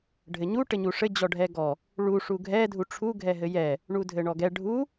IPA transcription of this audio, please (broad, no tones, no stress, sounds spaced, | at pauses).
ɖʱ ɘ ɲ u ʈ ɘ ɲ u ʂ ɘ d͡ʑ ɔ ɖʱ ɛ ɡ ɔ | ɭ u ʂ u ɡʱ ɛ dʱ u ʈ͡ʂʰ u ɡʱ ɛ ɦ ɘ j ɛ | ɳ u dʱ ɘ ɳ ɔ ɡ ɛ ɖʱ u